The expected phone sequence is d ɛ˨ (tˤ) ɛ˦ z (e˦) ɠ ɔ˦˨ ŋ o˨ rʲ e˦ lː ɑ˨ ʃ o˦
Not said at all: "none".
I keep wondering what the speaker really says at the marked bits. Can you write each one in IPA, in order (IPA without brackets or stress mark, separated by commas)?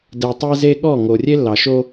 tˤ, e˦